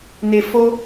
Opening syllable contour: low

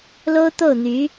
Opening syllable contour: high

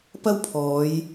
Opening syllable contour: high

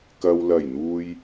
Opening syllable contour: low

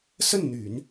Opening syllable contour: falling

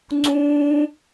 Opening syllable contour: high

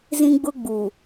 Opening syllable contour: high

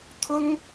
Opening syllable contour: high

